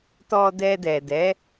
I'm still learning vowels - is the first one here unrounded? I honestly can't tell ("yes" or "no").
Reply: no